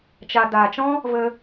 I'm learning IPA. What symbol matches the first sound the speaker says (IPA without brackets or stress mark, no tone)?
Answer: t͡ʃ